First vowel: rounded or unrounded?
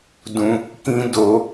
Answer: rounded